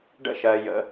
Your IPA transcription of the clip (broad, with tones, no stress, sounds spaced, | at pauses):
ɖ ə̰˧ ʃ ɜ˩ j ə̰˩